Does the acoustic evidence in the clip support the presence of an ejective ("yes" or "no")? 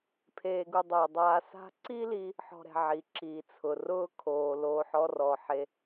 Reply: no